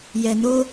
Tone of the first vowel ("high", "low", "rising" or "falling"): low